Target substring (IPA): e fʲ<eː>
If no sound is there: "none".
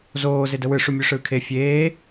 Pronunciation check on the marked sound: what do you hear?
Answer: eː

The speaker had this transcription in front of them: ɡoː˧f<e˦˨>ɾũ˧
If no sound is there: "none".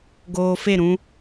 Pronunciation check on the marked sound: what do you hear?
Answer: e˦˨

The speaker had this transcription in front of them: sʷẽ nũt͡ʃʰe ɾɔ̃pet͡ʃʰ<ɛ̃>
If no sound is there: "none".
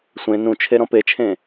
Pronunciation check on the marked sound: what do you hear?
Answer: ẽ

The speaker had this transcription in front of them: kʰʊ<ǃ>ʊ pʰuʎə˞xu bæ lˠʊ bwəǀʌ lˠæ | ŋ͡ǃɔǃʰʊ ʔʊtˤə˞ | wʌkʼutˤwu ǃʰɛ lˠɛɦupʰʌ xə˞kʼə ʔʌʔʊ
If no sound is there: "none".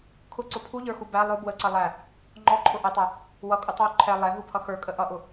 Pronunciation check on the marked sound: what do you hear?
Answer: ǀ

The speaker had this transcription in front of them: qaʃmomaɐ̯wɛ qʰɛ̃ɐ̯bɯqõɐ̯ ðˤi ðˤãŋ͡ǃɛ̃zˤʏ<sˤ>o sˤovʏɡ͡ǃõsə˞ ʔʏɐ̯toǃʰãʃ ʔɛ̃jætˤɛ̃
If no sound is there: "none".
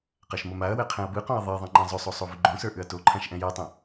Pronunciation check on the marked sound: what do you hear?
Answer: sˤ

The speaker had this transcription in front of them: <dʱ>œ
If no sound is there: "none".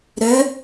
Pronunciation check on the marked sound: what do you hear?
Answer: ɾ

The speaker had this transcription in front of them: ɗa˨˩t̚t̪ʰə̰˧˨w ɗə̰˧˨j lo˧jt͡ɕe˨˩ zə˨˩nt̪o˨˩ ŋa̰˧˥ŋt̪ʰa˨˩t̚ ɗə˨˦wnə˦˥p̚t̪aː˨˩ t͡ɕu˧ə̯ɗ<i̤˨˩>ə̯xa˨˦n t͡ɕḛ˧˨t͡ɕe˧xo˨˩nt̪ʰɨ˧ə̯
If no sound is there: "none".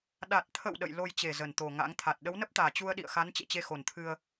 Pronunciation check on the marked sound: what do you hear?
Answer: ḭ˧˨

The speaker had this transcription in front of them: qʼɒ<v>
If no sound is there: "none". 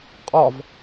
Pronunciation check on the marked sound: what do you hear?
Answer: v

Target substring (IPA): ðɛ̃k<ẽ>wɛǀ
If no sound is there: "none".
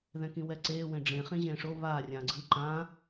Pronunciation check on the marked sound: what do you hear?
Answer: ĩ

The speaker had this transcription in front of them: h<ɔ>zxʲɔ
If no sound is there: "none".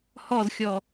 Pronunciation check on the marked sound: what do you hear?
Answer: ɔ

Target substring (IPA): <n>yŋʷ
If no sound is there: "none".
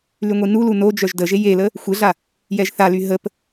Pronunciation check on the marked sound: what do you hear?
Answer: l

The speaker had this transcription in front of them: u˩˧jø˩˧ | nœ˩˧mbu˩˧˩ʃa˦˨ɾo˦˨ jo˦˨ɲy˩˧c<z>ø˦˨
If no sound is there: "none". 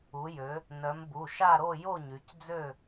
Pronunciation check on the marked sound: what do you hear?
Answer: d͡z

